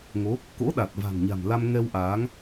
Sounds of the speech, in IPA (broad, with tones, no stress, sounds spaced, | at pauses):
ŋ o˨˦ | k o̰˧˥ ɗ a˨˩ t̚ v a̤˨˩ ŋ ɲ a̤˨˩ m l a˧ m ŋ ɛ˧ w ʔ aː˨˦ ŋ